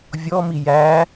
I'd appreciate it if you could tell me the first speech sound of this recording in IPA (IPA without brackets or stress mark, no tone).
vʲ